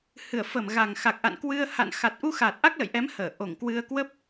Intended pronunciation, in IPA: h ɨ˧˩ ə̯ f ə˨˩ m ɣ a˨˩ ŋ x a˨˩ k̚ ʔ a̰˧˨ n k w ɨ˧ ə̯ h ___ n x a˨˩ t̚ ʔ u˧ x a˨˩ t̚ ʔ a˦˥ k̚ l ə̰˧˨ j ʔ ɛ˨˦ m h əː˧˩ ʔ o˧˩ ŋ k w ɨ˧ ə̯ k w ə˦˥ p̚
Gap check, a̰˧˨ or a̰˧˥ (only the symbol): a̰˧˨